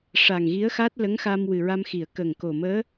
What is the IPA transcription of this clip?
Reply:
ʂ a˨˩ ŋ ɣ i˧˥ ə̯ x a˦˥ t̚ l ə˧˥ ŋ x a˧ m w ɨ˨˩ ɹ a˧ m x i˨˩˨ ə̯ k ə˨˩ ŋ k o˨˩ m əː˧˥

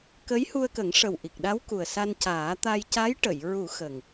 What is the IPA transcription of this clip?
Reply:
k ə˧˥ j h u˧ ə̯ k ə˨˩˦ ŋ ʂ ə˨˩ w ʔ i˨˩ k̚ ɗ a˧˥ w k u˨˩ ə̯ s a˧ n c aː˨˩˦ t̪ a˧ j c a˧˥ j ʈ ə˨˩˨ j ɹ u˨˩˦ x ə˨˩ ŋ

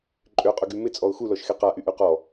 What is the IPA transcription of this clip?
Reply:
ǃʼ ø qʼ ʊ ɡ y m ɪ t͡sʼ ɔ ʊ̯ x u l ɔ ʃ x e q a ʔ y ʔ y q ɔ

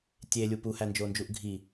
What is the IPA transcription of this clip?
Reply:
tʲ e lʲ u p u h æ n d͡ʒ o n d͡ʒ u ʔ ɡʱ i

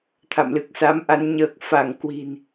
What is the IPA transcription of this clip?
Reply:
t̪ʰ a̰˧˨ m l ɨ˨˩ k̚ s a˨˦ m ʔ a˨˦ n ɲ əː˨˩ k̚ f a˧˩ ŋ k w i̤˨˩ n

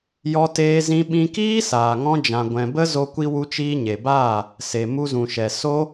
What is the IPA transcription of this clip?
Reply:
j ɔ˦ t eː˦ z ĩ˦ ɓ ĩ˧ k iː˦ s aː˨ ŋ ɔ̃˧ d͡ʒ ã˨ ɡʷ ɛ̃˨ b ə˦ z o˧ kʷ i˧ w u˧ t͡ʃ iː˧ ɲ e˨ b aː˦˨ | s e˨ m u˧ z ũ˨ ʃ ɛ˨ s o˦

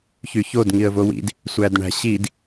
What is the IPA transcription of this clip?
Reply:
ç y ç o d ŋ i ə̯ v o w ḭ d | sʷ æ d ɳ æ̤ ɕ i d

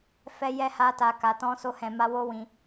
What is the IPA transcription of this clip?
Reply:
f ɛ˧ j ɛ˧ h a˧ t a˨ k a˨ t ɔ̃˧ s o˧ h ɛ̃˨ m a˧ w o˦ w ĩ˧

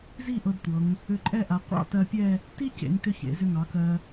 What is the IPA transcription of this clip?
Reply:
z i˥˧ ʔ ɤ˧ d tʷ ɤ˩˧ ŋ | ʏ˧˩ ǃʼ ɛ˥˧ ʔ a˩˧ qʷ ɑ̰˥˧ t ɜ˧ pʲ ɛ˥˧ | t i˥ c ḛ˩˧ ŋ t ʏ˧ ç ḛ˩˧ z ʏ˧ ŋ ɑ˩˧ k ɜ˧

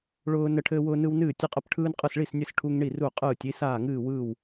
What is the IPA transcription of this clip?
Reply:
ɭ ʊː˦ n ə˦ ʈʰ ɘː˦ w ʊː˦ n ɯ˦ w n ɨː˥˩ tʲ ɘ˦ qʼ ə˥˩ p ʈʰ ɯː˦ n qʼ ɯ˥˩ s ɭ i˥˩ s nʲ ɘ˥˩ s ʈʰ u˦ ŋ ɳ i˥˩ r u˥˩ qʼ ɯː˥˩ tʲ i˦ s aː˥˩ ŋ ɨː˥˩ w ɯː˥˩ w

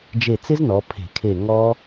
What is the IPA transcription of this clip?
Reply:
d͡ʒ e˧˩ t͡s ɪ˦˥ z n ɔ˩˧ pʰ e̤˧˩˧ kʰ e˧˩ ŋ ɔ˦˥

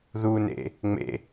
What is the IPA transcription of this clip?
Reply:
ð u n ḛ | ŋ͡m ḛ

